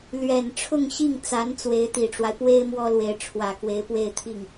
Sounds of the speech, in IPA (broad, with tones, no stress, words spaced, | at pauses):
lɥɛ˨˩nʈ͡ʂʰʊ˥˧ŋɕi˥˩ŋt͡sa˧˥n t͡swe˧˥ɪ̯t̪i˨˩ʈ͡ʂwa˦ɪ̯ pwe˥ɪ̯ mwɔ˥lwe˧˥ɪ̯ ʈ͡ʂʰwä˨˩kwe˧˥ɪ̯ pwe˥˧ɪ̯t̪ʰi˥˩ŋ